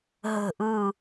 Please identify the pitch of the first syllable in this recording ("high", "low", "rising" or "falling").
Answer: falling